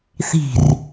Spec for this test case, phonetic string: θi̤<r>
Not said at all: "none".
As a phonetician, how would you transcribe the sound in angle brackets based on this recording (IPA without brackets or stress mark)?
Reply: r